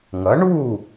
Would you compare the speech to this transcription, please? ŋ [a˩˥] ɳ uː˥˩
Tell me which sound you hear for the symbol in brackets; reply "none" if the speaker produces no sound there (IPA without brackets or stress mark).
ʌ˩˥